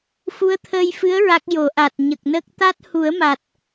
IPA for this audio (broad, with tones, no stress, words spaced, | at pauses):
fu˧˥ə̯t̪ʰəː˧jfɨ˧˥ə̯ ɹa˦˥k̚jo˨˩˦ ʔa˨˩t̚ɲə˨˩k̚nə˦˥k̚ t̪a˦˥t̚hu˨˩˦ə̯ma˨˩t̚